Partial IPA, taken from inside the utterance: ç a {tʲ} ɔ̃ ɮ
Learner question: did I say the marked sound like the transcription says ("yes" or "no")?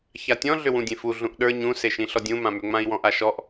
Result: yes